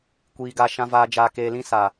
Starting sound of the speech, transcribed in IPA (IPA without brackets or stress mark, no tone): kʷ